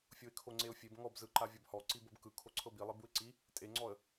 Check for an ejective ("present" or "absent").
present